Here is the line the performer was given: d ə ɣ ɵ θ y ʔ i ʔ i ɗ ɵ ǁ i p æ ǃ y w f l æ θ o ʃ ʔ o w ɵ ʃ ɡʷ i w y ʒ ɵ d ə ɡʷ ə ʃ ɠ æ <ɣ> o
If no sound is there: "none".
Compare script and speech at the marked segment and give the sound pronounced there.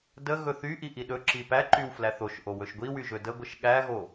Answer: ɣ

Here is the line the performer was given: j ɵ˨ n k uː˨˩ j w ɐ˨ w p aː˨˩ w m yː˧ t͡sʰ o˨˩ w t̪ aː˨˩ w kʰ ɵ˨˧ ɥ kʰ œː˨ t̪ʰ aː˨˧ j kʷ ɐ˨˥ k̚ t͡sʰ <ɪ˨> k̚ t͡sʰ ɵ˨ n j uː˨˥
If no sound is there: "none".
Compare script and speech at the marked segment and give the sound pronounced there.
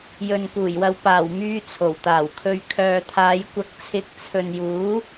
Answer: ɪ˨˥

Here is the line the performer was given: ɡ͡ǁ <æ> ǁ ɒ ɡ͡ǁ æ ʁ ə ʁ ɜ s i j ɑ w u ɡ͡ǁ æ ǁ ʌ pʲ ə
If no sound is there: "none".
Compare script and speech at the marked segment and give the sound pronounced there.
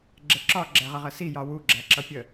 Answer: ɛ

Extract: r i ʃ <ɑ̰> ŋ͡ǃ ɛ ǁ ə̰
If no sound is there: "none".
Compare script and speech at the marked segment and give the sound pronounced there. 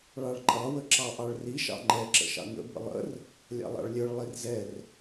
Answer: ɑ̰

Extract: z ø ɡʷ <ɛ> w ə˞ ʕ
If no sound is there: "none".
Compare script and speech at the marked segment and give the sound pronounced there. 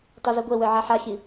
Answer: ɛ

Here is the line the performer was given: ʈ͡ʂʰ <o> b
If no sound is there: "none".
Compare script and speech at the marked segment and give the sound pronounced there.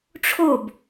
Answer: o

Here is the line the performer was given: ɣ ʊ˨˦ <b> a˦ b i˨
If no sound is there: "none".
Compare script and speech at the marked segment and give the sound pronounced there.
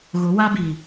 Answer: w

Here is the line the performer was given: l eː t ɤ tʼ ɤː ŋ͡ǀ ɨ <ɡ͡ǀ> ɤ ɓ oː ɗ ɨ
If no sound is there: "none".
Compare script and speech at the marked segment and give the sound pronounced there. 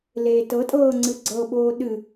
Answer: ɡ͡ǀ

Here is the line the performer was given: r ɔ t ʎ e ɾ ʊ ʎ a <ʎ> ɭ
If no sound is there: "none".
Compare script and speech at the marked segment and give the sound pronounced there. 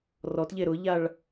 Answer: none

